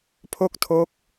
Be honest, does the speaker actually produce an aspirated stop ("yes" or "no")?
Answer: yes